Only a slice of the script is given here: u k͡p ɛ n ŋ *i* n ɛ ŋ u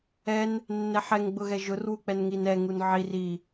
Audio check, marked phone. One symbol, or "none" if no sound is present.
i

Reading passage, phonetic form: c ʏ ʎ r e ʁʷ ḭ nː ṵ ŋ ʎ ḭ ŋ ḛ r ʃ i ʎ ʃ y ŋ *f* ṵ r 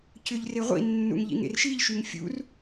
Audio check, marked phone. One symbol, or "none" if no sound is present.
fʲ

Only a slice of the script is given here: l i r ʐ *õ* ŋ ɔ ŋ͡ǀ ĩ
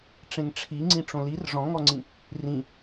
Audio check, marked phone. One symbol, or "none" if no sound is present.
ɔ̃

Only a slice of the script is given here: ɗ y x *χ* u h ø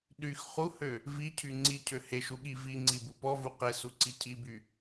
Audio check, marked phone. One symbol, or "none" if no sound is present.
χ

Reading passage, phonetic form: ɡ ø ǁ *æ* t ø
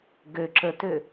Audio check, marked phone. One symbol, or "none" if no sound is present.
ə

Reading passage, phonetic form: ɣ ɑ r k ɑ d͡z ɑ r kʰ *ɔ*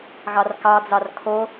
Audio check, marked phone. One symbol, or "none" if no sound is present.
o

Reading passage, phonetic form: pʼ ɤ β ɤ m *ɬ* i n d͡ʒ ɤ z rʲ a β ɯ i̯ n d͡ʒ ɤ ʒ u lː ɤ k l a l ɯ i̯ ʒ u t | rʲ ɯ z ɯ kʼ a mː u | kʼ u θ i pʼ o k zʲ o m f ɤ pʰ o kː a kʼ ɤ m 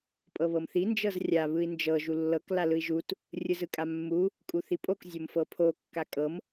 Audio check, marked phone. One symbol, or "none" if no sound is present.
θ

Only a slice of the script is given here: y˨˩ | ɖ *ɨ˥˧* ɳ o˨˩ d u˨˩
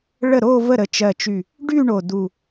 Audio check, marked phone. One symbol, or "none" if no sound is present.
y˥˧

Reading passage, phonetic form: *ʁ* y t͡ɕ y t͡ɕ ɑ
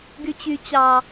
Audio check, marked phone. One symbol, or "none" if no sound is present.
ɡ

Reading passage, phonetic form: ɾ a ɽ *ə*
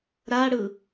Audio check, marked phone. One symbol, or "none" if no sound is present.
ɯ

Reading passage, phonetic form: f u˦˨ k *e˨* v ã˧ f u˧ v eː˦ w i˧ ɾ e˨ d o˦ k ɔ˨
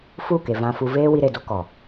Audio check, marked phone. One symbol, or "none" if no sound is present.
e˨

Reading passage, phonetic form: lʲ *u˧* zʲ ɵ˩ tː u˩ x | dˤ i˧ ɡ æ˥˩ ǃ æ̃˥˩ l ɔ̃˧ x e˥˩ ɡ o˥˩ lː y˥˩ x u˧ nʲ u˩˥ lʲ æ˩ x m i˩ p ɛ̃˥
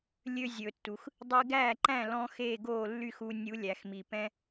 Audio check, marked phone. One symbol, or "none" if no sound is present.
ø˧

